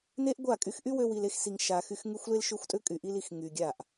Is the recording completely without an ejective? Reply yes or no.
no